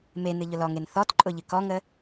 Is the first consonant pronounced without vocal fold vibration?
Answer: no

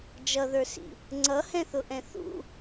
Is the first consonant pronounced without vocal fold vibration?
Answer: no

